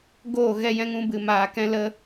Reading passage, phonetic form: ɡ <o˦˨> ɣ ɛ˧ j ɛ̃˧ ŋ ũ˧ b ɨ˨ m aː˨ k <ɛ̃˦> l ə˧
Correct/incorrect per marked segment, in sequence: incorrect: oː˦˨, incorrect: ɛ̃˧

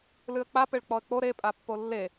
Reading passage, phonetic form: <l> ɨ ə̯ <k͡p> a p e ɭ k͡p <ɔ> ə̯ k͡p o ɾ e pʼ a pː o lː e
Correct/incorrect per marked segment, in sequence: correct, correct, correct

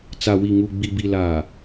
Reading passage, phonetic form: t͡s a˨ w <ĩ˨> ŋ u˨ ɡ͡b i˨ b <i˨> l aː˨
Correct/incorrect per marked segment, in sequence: incorrect: i˨, correct

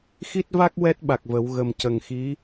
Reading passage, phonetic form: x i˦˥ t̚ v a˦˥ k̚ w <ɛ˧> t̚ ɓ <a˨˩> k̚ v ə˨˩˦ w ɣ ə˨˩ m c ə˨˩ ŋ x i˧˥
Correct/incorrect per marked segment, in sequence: incorrect: ɛ˦˥, correct

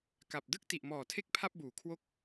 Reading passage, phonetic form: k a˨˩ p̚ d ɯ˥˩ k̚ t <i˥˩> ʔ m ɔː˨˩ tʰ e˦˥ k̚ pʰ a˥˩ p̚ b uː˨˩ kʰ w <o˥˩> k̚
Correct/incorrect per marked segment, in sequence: incorrect: i˨˩, correct

